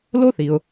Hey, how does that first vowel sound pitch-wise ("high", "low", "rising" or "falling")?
high